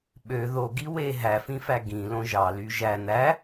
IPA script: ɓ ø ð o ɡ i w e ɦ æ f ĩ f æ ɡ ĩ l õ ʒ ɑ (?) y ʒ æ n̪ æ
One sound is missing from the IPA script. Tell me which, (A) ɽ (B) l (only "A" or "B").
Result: B